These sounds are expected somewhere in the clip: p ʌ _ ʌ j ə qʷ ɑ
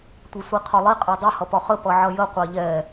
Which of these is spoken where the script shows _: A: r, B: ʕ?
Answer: B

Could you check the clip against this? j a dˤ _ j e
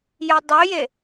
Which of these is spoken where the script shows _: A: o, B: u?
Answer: A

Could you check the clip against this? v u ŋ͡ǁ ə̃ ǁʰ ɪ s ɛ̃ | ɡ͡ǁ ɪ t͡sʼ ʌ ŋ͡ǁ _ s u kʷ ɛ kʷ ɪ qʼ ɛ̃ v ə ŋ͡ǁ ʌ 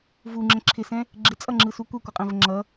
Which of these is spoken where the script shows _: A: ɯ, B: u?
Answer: A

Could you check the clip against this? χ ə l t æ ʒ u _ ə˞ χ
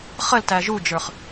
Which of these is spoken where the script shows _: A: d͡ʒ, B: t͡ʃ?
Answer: A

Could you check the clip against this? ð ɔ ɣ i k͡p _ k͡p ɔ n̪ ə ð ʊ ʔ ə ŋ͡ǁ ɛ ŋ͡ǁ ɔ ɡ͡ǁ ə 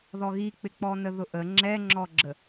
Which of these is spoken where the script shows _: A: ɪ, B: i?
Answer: A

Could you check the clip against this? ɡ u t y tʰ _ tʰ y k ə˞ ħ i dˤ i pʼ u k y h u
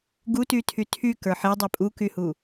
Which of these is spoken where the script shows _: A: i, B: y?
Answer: B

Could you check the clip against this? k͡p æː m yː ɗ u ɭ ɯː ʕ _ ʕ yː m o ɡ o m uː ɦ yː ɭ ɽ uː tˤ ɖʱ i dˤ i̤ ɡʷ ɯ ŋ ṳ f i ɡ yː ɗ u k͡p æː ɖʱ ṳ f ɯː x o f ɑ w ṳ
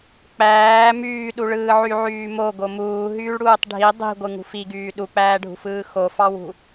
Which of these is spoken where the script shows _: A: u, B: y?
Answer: B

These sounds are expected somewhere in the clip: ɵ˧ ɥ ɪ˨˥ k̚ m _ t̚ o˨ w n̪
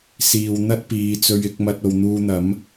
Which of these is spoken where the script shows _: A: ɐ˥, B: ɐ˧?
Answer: B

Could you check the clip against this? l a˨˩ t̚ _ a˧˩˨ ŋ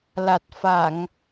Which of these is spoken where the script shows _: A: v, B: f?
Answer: B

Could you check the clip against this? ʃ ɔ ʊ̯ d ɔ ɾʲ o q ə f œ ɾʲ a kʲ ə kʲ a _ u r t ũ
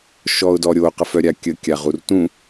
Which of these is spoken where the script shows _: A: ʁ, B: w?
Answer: A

